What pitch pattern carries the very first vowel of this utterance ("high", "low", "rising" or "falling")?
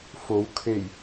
rising